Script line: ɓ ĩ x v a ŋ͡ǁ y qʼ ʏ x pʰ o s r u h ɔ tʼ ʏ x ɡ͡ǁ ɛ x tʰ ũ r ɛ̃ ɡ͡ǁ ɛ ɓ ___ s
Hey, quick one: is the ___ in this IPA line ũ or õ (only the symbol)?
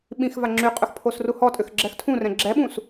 ũ